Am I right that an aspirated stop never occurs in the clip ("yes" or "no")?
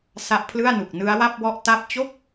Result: no